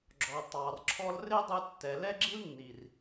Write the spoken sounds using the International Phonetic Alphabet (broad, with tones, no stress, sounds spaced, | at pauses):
ɡ͡ǁ ɔ˨ tˤ ɑ˨ r ǁʰ ɔ˧ l r ɪ˦ dˤ u˧ tː ɛ˨ l ɛ˦ ɡ͡ǁ i˦ l nː i˨ r